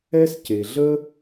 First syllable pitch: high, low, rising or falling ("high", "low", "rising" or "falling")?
high